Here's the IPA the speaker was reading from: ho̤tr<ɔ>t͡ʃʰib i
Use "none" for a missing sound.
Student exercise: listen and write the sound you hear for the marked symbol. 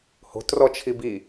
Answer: ɔ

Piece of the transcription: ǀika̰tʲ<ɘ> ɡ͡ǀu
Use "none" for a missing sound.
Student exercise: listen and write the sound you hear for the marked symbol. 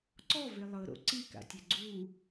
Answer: ɛ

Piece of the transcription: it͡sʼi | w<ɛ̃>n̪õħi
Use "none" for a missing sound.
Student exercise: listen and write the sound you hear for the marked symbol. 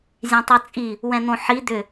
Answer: ɛ̃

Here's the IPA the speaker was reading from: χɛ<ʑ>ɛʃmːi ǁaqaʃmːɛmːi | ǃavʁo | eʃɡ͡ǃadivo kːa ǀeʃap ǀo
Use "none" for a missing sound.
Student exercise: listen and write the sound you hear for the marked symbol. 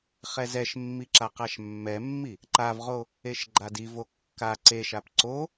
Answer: z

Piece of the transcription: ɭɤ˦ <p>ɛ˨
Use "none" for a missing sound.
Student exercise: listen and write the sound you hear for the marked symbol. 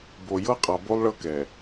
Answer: k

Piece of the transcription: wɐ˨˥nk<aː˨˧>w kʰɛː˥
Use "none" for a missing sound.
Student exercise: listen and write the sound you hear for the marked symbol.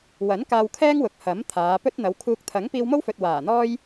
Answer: aː˧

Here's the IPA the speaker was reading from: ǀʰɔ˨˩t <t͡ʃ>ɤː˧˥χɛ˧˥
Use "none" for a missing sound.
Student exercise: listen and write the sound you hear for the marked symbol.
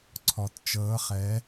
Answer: t͡ʃ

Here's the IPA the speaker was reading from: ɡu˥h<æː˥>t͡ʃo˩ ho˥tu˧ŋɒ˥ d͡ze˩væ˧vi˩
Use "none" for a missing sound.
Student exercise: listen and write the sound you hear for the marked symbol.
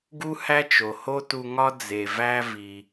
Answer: æ˥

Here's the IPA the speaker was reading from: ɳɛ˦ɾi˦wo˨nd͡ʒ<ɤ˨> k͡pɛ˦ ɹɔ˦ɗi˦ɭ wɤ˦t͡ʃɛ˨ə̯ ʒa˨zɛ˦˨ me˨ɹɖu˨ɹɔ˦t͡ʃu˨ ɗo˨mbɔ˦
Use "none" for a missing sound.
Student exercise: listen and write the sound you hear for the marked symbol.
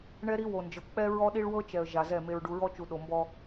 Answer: ɤ˨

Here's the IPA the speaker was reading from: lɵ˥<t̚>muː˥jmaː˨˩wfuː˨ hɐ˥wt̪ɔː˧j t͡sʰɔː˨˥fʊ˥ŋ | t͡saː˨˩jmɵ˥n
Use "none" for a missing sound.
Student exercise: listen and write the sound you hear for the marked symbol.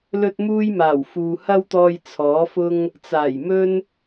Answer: t̚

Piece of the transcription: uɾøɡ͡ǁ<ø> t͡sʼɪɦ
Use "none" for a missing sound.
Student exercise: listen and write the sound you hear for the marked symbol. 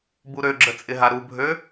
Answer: ə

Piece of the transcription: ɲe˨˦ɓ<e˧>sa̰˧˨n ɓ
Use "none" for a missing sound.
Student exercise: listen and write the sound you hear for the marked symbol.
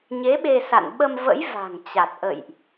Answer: e˧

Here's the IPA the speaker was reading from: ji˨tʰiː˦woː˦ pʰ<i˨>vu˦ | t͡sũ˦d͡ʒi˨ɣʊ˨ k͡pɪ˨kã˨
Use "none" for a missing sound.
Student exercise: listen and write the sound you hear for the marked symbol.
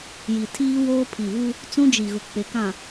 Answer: i˨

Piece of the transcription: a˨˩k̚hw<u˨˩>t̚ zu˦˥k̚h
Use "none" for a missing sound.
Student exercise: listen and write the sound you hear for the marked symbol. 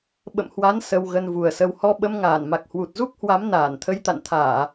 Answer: u˨˩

